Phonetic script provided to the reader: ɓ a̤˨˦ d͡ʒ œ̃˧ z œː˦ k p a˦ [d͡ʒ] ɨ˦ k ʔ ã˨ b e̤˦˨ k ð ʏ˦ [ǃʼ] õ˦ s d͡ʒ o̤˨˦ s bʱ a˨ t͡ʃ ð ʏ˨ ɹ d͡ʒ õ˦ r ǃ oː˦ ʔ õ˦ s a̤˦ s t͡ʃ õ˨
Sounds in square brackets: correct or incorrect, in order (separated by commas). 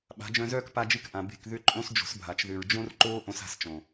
correct, correct